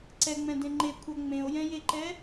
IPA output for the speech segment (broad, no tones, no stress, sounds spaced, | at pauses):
ǀ ɛ ŋ͡m ɛ̃ d ẽ ŋ͡ǃ e kʷʰ ʌ ŋ͡m ẽ o̯ j ɛ̃ j e ǃ ɛ